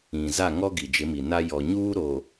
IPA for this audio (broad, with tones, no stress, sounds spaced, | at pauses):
ĩ˨ z a˦˨ ŋ ɔ˦ ɡ i˨ d͡ʒ ɪ˨˦ m i˨ n a˦ j ɔ˨ ɲ uː˦ ɾ o˨